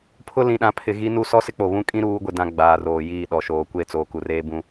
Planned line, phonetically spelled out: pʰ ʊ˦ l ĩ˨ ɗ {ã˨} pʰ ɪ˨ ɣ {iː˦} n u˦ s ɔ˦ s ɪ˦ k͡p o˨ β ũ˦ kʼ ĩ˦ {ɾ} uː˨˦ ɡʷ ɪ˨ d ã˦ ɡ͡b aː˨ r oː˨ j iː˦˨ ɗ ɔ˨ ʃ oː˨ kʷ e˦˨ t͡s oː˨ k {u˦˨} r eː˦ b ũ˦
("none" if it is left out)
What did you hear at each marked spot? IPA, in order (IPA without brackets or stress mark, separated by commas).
ã˨, i˦, ɾ, u˨